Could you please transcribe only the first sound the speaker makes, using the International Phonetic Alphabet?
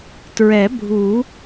t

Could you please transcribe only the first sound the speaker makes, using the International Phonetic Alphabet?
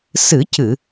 s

